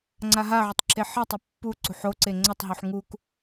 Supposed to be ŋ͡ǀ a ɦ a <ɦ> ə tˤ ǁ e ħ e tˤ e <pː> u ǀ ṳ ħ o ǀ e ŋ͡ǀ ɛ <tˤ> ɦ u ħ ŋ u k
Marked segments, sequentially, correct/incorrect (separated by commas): incorrect, correct, correct